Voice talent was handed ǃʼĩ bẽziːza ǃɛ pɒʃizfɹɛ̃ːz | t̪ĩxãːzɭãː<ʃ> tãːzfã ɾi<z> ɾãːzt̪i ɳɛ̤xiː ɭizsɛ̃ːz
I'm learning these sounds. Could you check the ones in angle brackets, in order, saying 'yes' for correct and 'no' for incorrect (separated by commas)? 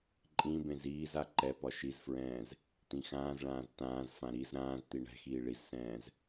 no, yes